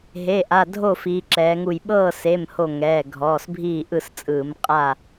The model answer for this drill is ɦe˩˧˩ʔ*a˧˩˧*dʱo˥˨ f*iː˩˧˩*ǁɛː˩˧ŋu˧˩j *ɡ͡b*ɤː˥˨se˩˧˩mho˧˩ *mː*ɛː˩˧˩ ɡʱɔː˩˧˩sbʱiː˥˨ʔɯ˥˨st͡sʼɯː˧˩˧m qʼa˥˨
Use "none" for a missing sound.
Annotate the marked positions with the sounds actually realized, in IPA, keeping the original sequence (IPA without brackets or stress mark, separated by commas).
a˩˧˩, iː˩˧, ɓ, ŋ